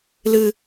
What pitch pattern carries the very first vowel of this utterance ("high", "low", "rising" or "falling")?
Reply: high